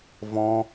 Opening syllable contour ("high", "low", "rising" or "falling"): high